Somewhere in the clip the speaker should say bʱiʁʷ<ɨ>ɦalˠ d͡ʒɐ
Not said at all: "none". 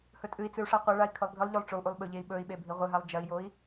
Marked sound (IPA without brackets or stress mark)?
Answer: ɨ